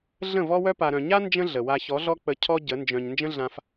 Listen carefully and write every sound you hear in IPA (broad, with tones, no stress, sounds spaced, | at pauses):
ɮ ə̃˦˨ v ɔ˦ w œ˦ p a˨ ɾ œ̃˨ ɲ a˦ n d͡ʒ ə̃˦ ɮ ə˨ w a˧ ç ɔ˨˦ ɮ ɔ˦ k͡p ə˧ cʰ ɔ˦ ɟ ə˨˦ n d͡ʒ œ̃˧ ɲ n d͡ʒ ə̃˦ ɮ ã˧ f